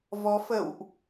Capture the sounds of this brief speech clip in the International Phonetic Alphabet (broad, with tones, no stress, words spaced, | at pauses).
vɔ˨˦ fə̰˧˨wʔ